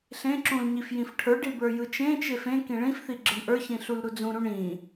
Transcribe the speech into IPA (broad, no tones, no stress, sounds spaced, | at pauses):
ɬ ẽ ǁ ũ l ɲ i f j ĩ f ʈʰ ə˞ ɖ i b ə˞ j ɯ t͡ʃ ẽ t͡ʃ e f ẽ k ĩ ɭ ĩ f θ i ɡ͡ǁ ɯ ɳ ʔ ə˞ ç ĩ ɬ u l ɾ u d͡z ũ ɾ ũ ɳ ĩ